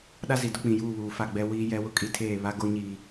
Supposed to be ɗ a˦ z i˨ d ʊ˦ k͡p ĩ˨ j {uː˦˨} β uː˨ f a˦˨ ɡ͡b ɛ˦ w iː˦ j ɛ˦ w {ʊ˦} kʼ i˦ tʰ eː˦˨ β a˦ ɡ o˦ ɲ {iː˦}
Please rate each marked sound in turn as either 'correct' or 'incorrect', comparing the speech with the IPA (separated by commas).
correct, correct, incorrect